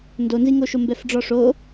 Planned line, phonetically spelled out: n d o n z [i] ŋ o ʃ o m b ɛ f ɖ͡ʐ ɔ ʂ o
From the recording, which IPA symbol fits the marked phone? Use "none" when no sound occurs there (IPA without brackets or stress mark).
i